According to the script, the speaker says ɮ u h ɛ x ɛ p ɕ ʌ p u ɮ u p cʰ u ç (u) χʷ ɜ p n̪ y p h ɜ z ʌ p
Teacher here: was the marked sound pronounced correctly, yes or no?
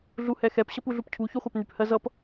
yes